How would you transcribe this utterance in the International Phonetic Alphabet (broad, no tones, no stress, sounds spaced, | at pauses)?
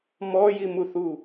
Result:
m ɔ j i m u θ u